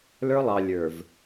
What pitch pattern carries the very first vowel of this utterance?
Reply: high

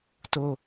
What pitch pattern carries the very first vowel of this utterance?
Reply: falling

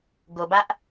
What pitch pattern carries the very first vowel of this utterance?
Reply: low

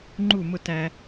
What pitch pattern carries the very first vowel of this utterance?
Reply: falling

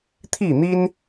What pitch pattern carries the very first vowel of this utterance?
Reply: falling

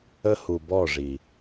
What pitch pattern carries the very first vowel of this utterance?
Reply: high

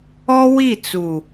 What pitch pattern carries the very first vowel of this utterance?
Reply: high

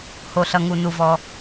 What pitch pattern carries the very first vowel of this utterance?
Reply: low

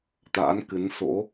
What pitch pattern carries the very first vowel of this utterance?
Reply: rising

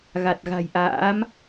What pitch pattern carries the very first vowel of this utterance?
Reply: low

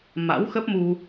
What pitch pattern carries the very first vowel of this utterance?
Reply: rising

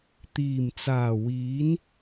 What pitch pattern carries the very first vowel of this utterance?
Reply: low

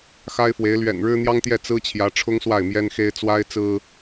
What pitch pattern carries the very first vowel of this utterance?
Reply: high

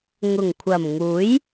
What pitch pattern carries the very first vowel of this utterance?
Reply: low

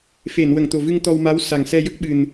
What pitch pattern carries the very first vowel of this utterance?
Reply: low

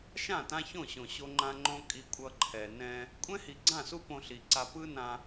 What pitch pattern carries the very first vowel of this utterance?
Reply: falling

